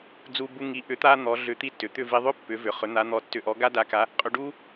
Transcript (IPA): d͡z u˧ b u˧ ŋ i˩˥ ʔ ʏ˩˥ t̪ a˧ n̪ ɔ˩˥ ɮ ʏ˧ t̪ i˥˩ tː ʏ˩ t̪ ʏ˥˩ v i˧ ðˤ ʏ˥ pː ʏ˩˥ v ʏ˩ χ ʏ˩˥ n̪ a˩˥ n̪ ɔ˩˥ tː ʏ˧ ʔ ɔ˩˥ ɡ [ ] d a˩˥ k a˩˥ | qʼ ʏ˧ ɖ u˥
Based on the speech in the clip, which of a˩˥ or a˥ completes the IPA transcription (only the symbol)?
a˥